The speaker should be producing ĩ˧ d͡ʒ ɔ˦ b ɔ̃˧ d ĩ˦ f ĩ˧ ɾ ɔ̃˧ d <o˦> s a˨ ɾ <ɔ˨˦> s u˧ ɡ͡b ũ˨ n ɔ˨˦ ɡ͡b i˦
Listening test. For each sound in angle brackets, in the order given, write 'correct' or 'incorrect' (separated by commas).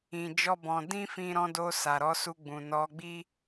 incorrect, correct